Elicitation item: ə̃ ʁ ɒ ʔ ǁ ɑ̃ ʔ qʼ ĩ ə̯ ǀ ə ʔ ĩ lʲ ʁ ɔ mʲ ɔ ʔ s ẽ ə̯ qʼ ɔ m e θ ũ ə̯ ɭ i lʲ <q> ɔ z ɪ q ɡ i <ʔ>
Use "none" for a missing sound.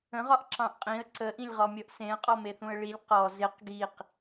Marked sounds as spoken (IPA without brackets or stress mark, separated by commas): q, q